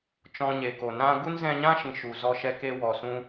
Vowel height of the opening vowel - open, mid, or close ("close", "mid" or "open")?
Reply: mid